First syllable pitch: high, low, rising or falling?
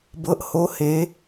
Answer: rising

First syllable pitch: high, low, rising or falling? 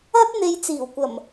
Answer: high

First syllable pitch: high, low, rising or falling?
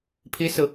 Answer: high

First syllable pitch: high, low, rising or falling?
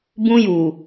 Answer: high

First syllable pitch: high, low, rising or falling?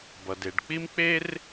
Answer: low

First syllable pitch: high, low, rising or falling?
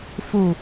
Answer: low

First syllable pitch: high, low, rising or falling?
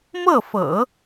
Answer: falling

